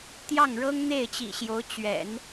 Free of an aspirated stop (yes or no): yes